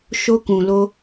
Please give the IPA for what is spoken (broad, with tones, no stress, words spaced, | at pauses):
ʃo˧ kũ˨ lo˧